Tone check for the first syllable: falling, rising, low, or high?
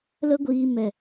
high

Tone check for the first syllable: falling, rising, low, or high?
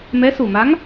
rising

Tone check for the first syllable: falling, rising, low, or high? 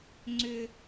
low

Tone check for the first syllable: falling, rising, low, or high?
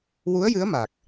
rising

